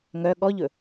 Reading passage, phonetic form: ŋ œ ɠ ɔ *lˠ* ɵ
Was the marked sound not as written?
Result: yes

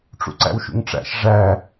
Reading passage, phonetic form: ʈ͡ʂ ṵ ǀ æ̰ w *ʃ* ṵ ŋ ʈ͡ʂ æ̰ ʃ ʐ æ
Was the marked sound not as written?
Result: no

